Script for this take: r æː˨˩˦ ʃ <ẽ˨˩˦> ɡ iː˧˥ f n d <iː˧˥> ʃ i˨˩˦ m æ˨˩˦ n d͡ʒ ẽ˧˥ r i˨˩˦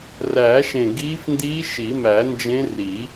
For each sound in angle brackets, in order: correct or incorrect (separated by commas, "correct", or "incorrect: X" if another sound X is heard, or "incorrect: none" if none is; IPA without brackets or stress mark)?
incorrect: ẽ˨˩, correct